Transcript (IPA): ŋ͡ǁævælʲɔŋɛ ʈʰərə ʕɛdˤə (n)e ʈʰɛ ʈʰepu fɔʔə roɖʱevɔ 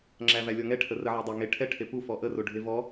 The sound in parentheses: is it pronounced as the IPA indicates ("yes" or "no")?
no